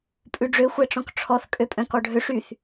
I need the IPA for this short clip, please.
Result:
pʼ ʉ ɖ͡ʐ ø xʷ æ ʈ͡ʂ ɔ̃ k ʈ͡ʂʰ ɔ θ kʼ ø pʼ œ̃ k ɔ ɖʱ ø ʂ y θ

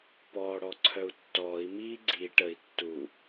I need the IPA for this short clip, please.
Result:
p ɔː ɽ ɔ ǀʰ œ u̯ tː ɔː i̯ m iː ɡ͡ǀ i ʈ ə i̯ tː u

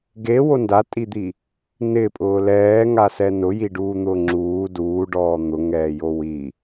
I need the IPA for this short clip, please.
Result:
ɡ e w o n d a tʼ i d̪ i | n ɪ pʼ ʊː l ɛː ŋ a s ɛ n ʊ j i ɖ uː n̪ ʊː ŋ͡ǁ uː d uː ɖ ɔː n̪ ʊ ŋ ɛː j o w i

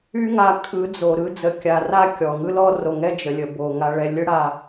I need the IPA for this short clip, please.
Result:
y˦ ŋ a˧ kʼ ɯ˨˦ d͡z o˨ ɾ ɯ˦ d͡z ə˧ kʲ a˧ r a˦˨ kʲ ɔ˨ ŋ ɯ˦ l ɔ˦ r o˧ ŋ ɛ˦ d͡ʒ ə˨˦ lʲ ə˧ b o˧ ŋ a˧ ɭ ɛ˧ lʲ ɯ˦ ɽ a˧

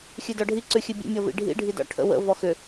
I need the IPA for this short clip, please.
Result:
xʲ ʉ d ɔ ɖʱ i ǀ ʉ xʲ ʉ bʲ ə̰ mʲ ʌ v ḭ ɖʱ ḭ ɖʱ i d ɔ̰ ʈʰ ə̰ w ə̰ v ɔ x ʏ

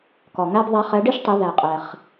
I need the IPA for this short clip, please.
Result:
k ɔ˩ ŋ æ˥ b ðˤ æ˧˥ χ ɛ˩˧ ɖ i˥ ʃ tˤ i˩˧ ð æ˩ qʼ ɛ˩ χ

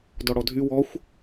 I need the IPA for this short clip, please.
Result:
d ɔ ɽ ɔ dʱ y w ɔ xʷ

